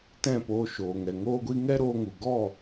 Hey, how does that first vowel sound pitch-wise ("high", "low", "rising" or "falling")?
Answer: falling